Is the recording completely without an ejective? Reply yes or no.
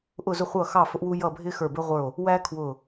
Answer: yes